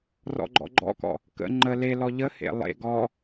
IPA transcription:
r ɔ̰ ɡ͡ǃ ɔ̰ ɡ͡ǃ ɔ̰ k ɔ̰ | k ə̰ ŋ͡ǃ ə l e l ɔ ʎ ə h ḛ lˠ ḛ ɡ ɔ

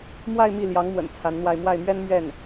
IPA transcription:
m w a˥˧ ɪ̯ m i˥˩ l j ɑ˧˥ ŋ m w ə̰˨˩ n t͡sʰ a˧˥ n n̪ w a˥˧ ɪ̯ m w a˥˩ ɪ̯ m ɥ ɛ˥ n m ɥ ɛ˥˩ n

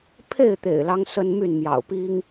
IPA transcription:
pʰ e˥˨ ɪ̯ t̪ ḛ˨˩ ɪ̯ l ɑ˦ ŋ s ə˦ n m y˥˨ n m j ɑ̰˨˩ ʊ̯ p i˦ ŋ

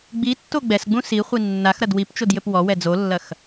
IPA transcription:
ɡ͡b i tː o ɡ͡b ɛ s ɡ͡b ũ s i χʷ i nː a x ɾ ɐ d w i p t͡ʃ o d j ɘ p w ɔ w ɛ d͡z o lː ɐ x

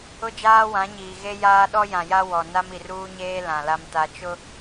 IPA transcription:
ʊ˦ d͡ʒ aː˦ w ã˨˦ ɲ iː˨ ɣ e˦ j aː˦ ɗ ɔ˦ j ã˨ j a˦ w ɔ˨ n a˦ m i˨ r uː˦ ɲ eː˦ l ã˨ l a˦ m t a˦ t͡ʃ ʊ˦

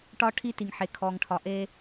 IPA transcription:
ʈ ɒ˦ ʈʰ i˦ t i˨ ŋ ħ e˨ kʰ ɔ˨ ŋ ʈʰ ɒ˨ ʔ e˦

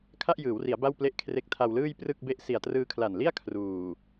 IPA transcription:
kʰ a˥˩ ʔ j ɯː˩˦ w r i˩˦ a̯ b a˥˩ w p l e˥˩ ʔ kʰ r e˦˥ k̚ tʰ a˧ w l ɯː˥˩ j p r ɯ˥˩ k̚ b e˥˩ ʔ s i˨˩ a̯ t r ɯː˧ kʰ l a˨˩ n l i˥˩ a̯ kʰ r uː˨˩

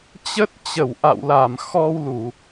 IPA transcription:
t͡ɕ ə˦˥ t̚ t͡ɕ ə˧˩ w ʔ a̰˧˨ w l a˧˩ m x ɔ˧ w l u˧˩˨

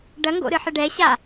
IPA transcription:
ɖ ɐ ŋ ɡ o̰ ɾ ɨ ħ ɘ ɖ ɛ ɕ a

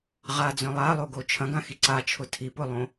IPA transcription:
ʁ a d͡z œ̃ lˠ a lˠ o ɡ o t͡ʃʰ ɐ̃ ɡ ã x i ǀ a t͡ʃʰ ʊ tʰ i p ʊ lˠ õ

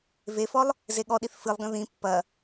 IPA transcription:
v e f ɔ lˠ | z e ɠ ɔ ɗ i θ f ɨ lˠ ɡ ɐ̃ ð ĩ pː ɐ

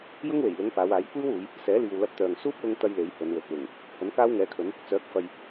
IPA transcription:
j ʊ˥ ŋ w e˨˩ j l ʊ˨˥ ŋ p aː˨˧ w aː˨˥ j kʷ iː˥ w uː˨˧ j | s ɛː˨˥ l iː˨ w l ɐ˧ p̚ t̪ œː˨ ŋ s uː˥ p̚ w ʊ˧ ŋ t̪ ɐ˥ j l e˨˥ j h ɵ˨˧ n w ɵ˨ t̚ w ʊ˨˩ ŋ | h ɵ˨˥ n k aː˥ w ŋ ɛː˨˥ kʰ ɵ˨˥ n | t͡s œː˨˥ k̚ f ɐ˨ j

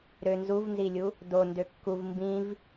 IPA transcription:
ɾ ø n z u v n z i lʲ u | d o n d ø kː u v m b ĩ v

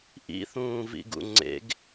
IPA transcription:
ʔ ḭ θ ũː v ḭ ɡ ṵ ŋ͡ǀ ḛ ɡ

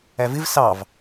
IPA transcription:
æ v ɪ v s ɑ v

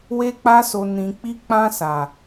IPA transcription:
w e˧ k͡p a˧ s o˨ n ĩ˨ k͡p i˧ k͡p ã˧ s a˨

